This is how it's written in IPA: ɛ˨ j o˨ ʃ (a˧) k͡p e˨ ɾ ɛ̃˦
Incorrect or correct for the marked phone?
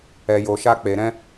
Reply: correct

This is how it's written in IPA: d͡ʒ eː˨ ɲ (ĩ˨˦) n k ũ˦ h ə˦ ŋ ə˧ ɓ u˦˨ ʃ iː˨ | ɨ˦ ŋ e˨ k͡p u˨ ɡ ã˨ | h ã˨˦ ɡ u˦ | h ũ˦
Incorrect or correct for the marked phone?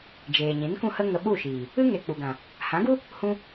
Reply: correct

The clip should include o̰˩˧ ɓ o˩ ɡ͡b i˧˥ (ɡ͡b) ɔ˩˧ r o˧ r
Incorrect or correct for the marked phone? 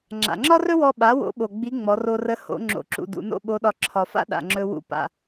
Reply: incorrect: ŋ͡m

